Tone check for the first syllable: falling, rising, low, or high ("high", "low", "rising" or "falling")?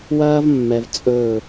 high